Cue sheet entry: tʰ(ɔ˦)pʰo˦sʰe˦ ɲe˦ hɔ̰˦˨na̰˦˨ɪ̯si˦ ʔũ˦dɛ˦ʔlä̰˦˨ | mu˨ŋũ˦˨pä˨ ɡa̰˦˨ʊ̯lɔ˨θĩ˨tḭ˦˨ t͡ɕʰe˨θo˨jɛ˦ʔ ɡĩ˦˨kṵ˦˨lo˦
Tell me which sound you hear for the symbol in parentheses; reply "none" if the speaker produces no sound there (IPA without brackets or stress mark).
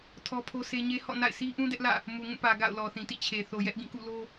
ɔ˦